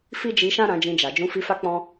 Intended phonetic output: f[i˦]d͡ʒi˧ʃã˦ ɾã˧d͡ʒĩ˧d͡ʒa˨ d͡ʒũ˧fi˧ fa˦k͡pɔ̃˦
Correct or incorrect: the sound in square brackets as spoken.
correct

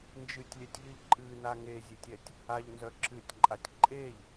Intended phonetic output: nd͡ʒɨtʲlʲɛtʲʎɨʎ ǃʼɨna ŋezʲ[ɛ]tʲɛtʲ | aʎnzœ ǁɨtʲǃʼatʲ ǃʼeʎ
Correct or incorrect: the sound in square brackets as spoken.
incorrect: e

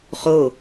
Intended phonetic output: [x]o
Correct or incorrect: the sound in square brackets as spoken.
incorrect: χ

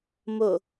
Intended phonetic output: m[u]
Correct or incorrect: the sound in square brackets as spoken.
incorrect: o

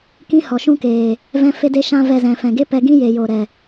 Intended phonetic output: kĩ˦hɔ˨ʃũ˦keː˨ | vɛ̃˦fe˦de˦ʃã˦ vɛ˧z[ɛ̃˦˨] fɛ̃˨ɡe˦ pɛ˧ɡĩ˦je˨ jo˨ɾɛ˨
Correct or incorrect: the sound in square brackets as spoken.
incorrect: ɛ̃˨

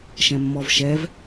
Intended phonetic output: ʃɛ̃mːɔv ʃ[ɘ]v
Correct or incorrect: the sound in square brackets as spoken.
incorrect: ɛ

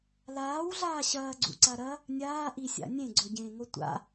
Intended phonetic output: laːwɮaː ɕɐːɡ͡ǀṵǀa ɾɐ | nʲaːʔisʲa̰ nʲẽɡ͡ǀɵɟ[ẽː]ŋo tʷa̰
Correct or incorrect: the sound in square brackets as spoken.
correct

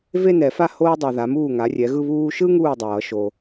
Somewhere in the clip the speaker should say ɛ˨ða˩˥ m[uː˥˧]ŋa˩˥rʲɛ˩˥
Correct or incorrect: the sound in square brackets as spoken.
incorrect: uː˥˩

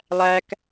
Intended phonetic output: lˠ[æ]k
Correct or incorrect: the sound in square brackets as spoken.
correct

